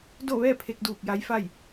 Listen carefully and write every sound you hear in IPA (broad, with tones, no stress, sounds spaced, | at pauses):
d o˥˨ ʋ ɛː˥˨ pʰ e˧ k̚ d uː˧˩ k̚ j a˧˥ j f a˥˨ j